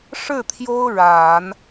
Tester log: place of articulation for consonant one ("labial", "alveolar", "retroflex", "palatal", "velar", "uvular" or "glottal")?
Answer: retroflex